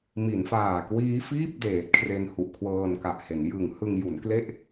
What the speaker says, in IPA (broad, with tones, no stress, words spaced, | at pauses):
mi˩˦nfaː˨˩ kwiː˦˥fiː˥˩p̚ deː˨˩t̚kʰre˧n hu˨˩ʔkʰwɤː˧nka˨˩ʔhe˩˦n jɯ˨˩ŋhɯ˧ŋ ju˩˦nkle˥˩ʔ